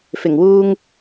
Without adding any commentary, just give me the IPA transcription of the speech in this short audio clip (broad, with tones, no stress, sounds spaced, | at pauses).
f ɪ˨˩ ŋ w uː˧ ŋ